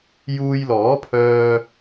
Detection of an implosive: absent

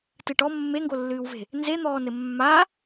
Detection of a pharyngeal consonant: absent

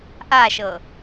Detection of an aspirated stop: absent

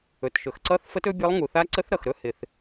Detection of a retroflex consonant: absent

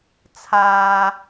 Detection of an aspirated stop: present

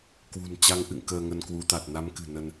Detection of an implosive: absent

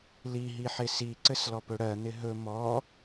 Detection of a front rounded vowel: absent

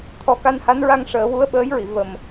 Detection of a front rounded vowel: absent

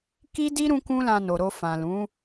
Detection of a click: absent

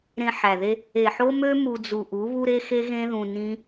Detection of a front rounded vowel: present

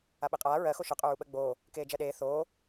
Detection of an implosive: present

